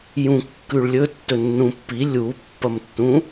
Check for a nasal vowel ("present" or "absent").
present